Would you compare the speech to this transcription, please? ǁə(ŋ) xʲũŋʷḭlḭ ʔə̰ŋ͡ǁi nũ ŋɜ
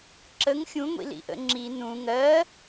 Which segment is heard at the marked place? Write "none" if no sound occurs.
ŋ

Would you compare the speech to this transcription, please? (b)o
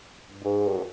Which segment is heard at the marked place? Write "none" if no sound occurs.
b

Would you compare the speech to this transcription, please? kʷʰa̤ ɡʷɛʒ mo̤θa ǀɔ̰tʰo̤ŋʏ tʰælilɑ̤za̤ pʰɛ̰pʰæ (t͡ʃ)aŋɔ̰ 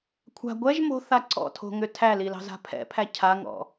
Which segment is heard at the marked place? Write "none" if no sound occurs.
cʰ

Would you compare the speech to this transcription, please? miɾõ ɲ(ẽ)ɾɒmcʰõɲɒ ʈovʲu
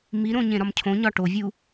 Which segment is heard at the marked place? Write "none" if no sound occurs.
ẽ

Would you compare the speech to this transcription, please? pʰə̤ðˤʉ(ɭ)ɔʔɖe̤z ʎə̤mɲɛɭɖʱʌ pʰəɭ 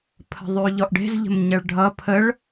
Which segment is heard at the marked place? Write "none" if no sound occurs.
ʎ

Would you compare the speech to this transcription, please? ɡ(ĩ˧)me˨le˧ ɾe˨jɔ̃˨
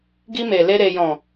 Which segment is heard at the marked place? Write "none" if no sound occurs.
i˧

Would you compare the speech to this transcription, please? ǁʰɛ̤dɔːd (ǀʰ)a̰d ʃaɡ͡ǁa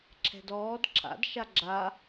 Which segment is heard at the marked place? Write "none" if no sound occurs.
ǁʰ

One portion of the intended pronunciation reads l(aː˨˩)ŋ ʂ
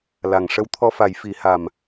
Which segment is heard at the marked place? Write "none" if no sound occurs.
a˨˩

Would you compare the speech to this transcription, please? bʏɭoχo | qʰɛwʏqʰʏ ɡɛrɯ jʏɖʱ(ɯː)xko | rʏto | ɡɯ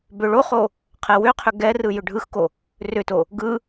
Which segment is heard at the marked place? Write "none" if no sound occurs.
ɯ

